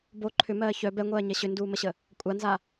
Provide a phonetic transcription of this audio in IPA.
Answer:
b o ǃʰ ʏ m ɜː ç œ b ɛ ŋʷ ɜː ɲ ɛ ɕ ʏ n d uː m ə ɕ ə | kʷʼ a n z a

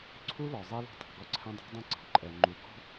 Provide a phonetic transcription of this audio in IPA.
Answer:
ǀʰ u˦ l ɔ˨ zˤ i˦ l ɔ̤˦ tˤ ɑ̤˨ ɡ ɔ˦ ǀʰ ɛ̃˦ dˤ ɑ̤˦ dˤ œ̃˦ ǀ ɑ̤˨ ǃʼ ɛ˨ ŋ͡ǃ u˨ ɡ ɔ̤˦

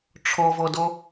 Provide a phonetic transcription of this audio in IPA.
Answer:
ʈ͡ʂʰ ɔ v ɔ d ɔ

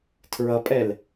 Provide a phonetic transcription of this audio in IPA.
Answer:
tʰ ɹ ʌ pʼ ɛ l

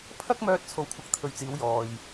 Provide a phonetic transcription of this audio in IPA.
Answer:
pʰ ɐ˥ k̚ m œː˥ t̚ t͡sʰ o˧ w kʷʰ ɐ˧ k̚ t̪ʰ ɵ˨˧ ɥ t͡s iː˨˧ w j ɔː˨ j

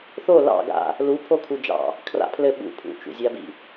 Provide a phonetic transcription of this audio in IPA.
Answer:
θ o l ɑ̰ ɡ a̰ | l u pʰ o kʰ u d͡ʒ ɑ̰ | kʰ r a̰ pʰ l ɘ ɓ ṵ pʰ ṵ t͡ʃ ṵ zʲ a b ḭ

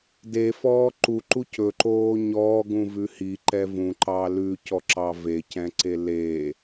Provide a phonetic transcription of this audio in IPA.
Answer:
d e f ɔː ǃ u ǃ u c ɵ ǃ oː ɲ ɔː ɡ ũ v ʉ h i ǃ ɛ v ũ ǃ ɑ l ʉ c ɔ ǁ ɑ v e c ɛ̃ ǀ e l e

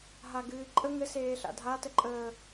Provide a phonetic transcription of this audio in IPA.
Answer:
ɦ a ɡ ɨː ǃʼ ə ŋ ɘ s eː ɬ a̰ dʱ a t ə ǃʼ əː

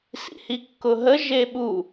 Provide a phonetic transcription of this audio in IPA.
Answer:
s ḭ h i kː ʊ ɦ ə ʒ e ɓ u

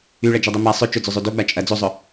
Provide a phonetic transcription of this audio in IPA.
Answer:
y ɭ ɐ d͡ʒ ɛ dˤ ø m a sˤ ø t͡ʃ ʊ d͡z ø zˤ ø d o ɡ͡b a t͡ʃʼ ɐ d͡z o zˤ ʊ

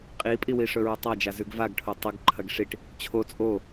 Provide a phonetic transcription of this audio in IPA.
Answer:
qʼ i pʼ i w i ʂ ɵ ɹ o tˤ a d͡ʒ a z ʉ ɡ v a ɡ ʈʰ o tˤ ɵ ɡ ǃʰ ɐ ɡ ʂ i ʈ | t͡ɕʰ o t͡sʼ o

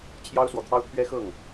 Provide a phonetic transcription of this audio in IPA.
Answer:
t͡ɕʰ j ɑ˦ ʊ̯ s w ɔ˨ t̪ʰ ɑ˦ ʊ̯ t̪ʰ ɥ ɛ˦ x ɤ˥˨ ŋ

